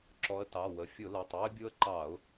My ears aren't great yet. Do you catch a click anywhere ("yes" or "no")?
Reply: yes